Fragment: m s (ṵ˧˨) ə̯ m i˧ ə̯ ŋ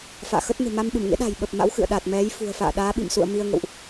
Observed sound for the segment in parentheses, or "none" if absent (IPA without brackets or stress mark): ṵ˧˨